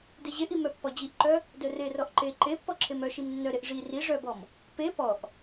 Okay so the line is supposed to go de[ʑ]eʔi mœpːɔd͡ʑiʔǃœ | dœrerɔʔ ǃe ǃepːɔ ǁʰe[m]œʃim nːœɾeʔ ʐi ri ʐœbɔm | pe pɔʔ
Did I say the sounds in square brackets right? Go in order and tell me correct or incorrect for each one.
correct, correct

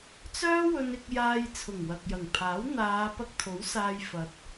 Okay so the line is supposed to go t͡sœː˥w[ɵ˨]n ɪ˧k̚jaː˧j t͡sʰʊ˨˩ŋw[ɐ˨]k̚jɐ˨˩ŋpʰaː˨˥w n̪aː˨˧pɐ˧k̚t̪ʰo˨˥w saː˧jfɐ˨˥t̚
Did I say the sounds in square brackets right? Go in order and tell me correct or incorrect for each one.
incorrect, correct

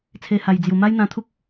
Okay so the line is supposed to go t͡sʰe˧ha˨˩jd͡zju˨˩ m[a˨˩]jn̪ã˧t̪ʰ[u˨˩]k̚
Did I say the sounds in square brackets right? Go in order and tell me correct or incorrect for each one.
incorrect, incorrect

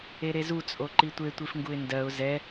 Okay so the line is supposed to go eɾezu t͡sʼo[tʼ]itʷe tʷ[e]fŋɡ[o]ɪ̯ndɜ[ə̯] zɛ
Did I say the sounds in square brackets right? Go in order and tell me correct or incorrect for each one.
incorrect, incorrect, incorrect, incorrect

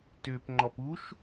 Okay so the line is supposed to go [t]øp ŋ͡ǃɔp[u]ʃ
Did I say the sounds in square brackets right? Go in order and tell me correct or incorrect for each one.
correct, correct

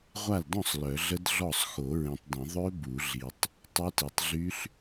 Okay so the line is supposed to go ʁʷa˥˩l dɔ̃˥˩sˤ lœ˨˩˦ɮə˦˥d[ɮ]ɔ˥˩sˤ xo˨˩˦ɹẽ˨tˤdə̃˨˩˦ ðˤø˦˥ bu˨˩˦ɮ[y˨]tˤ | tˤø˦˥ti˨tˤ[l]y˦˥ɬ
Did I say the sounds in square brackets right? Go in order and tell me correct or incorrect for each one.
correct, incorrect, incorrect

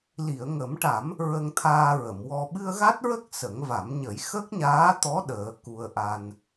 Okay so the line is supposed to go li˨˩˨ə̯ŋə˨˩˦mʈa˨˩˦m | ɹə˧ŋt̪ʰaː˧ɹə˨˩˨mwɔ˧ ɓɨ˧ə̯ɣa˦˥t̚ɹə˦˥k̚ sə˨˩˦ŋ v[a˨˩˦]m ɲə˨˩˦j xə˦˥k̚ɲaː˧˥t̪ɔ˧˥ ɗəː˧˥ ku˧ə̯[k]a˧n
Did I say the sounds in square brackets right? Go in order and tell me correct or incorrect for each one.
correct, incorrect

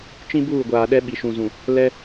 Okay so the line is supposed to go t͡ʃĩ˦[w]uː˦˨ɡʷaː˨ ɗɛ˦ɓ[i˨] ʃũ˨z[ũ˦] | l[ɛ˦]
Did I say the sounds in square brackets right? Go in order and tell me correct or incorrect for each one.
incorrect, correct, incorrect, correct

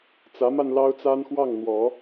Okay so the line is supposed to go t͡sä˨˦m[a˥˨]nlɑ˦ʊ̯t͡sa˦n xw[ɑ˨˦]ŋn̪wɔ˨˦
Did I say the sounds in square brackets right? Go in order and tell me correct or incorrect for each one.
incorrect, incorrect

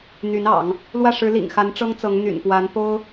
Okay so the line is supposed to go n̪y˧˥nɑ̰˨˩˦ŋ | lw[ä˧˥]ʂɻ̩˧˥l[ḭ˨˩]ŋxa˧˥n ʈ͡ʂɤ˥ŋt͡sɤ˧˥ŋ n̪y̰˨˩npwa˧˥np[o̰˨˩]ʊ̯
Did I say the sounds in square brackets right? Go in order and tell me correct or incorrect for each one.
incorrect, correct, incorrect

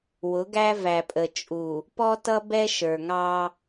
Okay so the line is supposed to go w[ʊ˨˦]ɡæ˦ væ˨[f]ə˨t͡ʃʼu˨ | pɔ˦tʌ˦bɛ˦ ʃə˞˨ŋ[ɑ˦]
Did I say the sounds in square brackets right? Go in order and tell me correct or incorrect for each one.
correct, incorrect, correct

